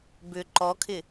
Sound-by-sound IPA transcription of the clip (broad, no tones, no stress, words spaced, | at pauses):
bʏ ǃɔkʰɪ